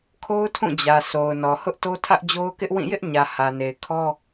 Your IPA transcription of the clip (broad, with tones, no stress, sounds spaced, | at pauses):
kʰ o˦ ʊ̯ tʰ ũ˦˨ d͡ʑ ä˨ s o˨ ʊ̯ n ɔ˨ h ʊ˦ ʔ t o˦ tʰ ä˦ ʔ d͡ʑ o˦ ʊ̯ k ɪ˦ ʔ w ĩ˦˨ j ɪ˦ ʔ ɲ ä˨ h ä˨ n e˨ ɪ̯ kʰ ɔ˦